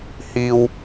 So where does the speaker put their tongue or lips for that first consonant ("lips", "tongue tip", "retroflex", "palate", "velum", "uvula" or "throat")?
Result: throat